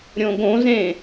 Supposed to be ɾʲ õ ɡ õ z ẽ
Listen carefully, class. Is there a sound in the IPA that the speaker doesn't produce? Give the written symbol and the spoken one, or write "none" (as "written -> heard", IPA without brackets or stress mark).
none